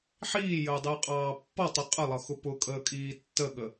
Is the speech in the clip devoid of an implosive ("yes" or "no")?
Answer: no